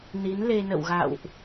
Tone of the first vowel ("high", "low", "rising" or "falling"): rising